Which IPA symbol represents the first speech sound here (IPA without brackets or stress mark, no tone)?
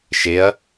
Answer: ʃ